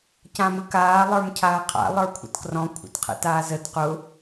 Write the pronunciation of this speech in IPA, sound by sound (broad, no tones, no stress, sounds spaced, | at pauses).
c ã m ɯ k aː lˠ ə˞ m cʰ aː qʰ a̰ lˠ ə˞ kʷʰ ə̰ t k r ɔ̃ kʷʰ ə̰ t qʰ ə̰ t aː z ə t q ʊ